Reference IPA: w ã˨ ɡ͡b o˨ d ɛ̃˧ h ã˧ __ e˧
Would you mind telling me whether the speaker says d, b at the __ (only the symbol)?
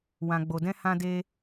d